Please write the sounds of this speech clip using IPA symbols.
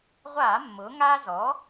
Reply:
ʁʷ aː˧˩˧ mː ʊː˩˧ ŋ aː˦ z ɔ˩˥

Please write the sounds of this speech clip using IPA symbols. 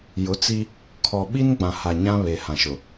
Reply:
j ʊ˨˦ t͡s i˦ | kʰ ɔ˨ ɓ i˦ n ɡ͡b ã˨ h a˨ ɲ ã˦ β e˨ h ã˨ ʃ ʊ˨

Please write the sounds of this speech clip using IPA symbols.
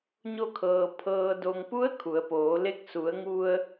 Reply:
ɲ o˧ kʰ ɤː˩ pʰ ɤː˩ d o˩ ŋ p u˧˥ ə̯ kʰ u˩˧ ə̯ p oː˩˧ l e˧˥ k̚ s u˩˧ ə̯ ŋ u˧ ə̯

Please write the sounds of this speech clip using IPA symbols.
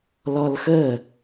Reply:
l ɔ l x ə

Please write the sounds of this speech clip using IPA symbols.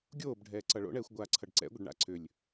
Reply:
ɡʲ oː b ɖʱ ɛː ǀ ʌ ɭ o̰ ɳ ɛː xʷ ɡʷ aː ǀʰ ʌ ɖ ǀ ɛ̰ ɡʷ ʌ ɖ ɳ a̰ ǀʰ ʏ lʲ

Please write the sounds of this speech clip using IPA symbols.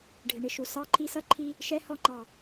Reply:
ɖʱ ɪ˨ ɳ ɪ˨ ʃ u˨ s ɑ˧ ǃʰ i˧ s ʌ˧ ǃʰ i˧ | ʃ ɛ˧ h ɔ˧ ŋ͡ǃ ɑ˨

